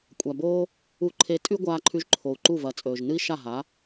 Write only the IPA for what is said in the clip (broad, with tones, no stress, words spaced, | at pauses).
kʷʼa˩boː˥ | u˧ǃʰe˧ tʼʉ˥ɡʷaː˧ǃʰʉ˧ʒ ǃʰo˩u̯ ǃu˥˩vɐ˩˥t͡sʼɵː˩ʒ nɨ˥i̯ ʃa˥˩ɦa˩˥